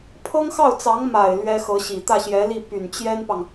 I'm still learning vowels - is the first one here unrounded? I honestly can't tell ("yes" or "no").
yes